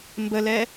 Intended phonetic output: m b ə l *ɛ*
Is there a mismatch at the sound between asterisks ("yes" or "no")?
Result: no